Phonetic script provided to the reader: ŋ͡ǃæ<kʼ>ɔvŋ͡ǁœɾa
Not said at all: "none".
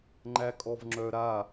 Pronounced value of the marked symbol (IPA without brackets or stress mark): kʼ